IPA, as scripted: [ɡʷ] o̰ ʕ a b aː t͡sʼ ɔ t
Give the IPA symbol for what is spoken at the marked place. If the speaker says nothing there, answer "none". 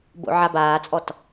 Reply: b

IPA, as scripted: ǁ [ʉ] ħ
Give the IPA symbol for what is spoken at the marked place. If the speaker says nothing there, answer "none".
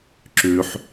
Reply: ʉ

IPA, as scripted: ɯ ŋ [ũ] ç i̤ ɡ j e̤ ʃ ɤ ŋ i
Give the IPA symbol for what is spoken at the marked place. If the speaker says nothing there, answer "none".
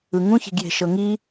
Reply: ũ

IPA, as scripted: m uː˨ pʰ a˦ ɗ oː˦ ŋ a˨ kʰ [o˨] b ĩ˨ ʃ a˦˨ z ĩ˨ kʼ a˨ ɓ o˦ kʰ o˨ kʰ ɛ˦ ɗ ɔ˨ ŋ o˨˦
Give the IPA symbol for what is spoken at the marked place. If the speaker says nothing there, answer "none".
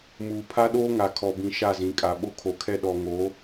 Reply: ɔ˨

